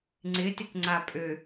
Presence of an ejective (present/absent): present